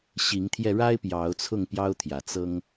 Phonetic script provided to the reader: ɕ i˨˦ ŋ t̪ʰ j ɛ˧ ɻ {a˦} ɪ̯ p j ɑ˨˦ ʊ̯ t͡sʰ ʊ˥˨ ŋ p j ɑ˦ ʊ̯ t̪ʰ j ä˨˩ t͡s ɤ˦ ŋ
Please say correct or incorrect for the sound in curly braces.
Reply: correct